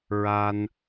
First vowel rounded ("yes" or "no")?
no